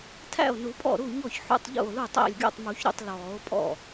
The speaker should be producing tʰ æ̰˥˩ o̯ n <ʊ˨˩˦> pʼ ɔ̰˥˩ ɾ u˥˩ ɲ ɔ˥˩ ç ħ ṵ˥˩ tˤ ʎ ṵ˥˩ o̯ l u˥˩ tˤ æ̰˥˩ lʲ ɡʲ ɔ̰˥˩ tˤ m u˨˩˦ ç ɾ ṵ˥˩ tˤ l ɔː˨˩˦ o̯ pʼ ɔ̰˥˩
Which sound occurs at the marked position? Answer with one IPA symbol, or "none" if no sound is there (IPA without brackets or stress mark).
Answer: u˨˩˦